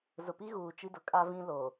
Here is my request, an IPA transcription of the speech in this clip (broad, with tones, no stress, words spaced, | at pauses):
zʊ˨pi˦ɣuː˨ t͡ʃi˦dʊ˨ kʼa˦vĩ˦ lo˨